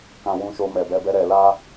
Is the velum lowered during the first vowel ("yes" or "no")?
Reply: yes